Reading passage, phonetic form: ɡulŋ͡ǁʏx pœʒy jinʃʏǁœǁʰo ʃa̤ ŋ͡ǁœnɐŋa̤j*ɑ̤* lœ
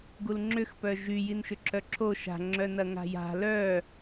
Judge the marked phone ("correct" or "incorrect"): incorrect